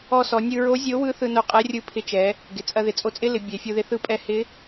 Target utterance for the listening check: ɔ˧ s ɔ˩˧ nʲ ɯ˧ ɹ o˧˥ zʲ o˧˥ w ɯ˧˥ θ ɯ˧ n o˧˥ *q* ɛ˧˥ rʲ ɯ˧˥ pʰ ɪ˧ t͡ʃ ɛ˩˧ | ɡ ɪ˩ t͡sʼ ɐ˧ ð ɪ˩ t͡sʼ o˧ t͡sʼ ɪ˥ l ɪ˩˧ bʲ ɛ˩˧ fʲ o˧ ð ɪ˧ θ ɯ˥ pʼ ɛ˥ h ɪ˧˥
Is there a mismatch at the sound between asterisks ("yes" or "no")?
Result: yes